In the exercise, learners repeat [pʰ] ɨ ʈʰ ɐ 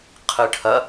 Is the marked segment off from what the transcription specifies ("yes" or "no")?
yes